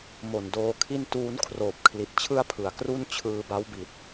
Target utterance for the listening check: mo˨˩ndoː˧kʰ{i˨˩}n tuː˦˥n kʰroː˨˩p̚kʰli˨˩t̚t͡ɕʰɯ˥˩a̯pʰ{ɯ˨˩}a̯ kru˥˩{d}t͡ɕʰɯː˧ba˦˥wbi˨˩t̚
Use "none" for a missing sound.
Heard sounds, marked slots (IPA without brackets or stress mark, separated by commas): i˥˩, ɯ˨˩, n